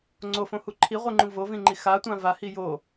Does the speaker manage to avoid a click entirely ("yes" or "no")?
no